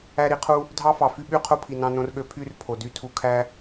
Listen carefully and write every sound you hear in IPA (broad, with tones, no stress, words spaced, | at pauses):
æ˧ɾi˨˦qʰu˧ | dʱɑ˦fɑ˨ fy˦ɓy˦qʰo˦ pʰi˨nɑ̃˧nõ˧rɠø˧ pʰy˦rpʰo˨ dy˧tʰu˧kʰæ˦